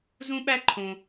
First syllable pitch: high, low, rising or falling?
high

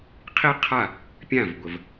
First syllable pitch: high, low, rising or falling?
high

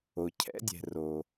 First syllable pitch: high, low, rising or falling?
low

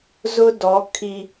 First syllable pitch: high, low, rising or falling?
high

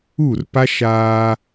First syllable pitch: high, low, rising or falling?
falling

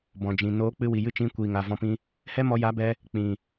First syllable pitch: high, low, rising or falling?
low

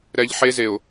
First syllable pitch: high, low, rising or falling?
low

